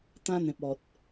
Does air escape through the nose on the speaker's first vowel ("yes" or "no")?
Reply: yes